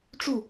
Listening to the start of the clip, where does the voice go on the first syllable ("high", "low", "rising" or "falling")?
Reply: falling